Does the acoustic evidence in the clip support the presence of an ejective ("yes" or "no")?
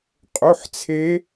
yes